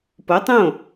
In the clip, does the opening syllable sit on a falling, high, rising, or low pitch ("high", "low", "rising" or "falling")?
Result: rising